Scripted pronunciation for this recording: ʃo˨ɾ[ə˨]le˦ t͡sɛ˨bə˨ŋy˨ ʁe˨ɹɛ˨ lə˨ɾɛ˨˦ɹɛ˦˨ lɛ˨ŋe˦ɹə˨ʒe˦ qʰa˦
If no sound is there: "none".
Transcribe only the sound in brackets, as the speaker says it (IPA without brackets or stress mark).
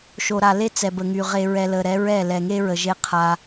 a˨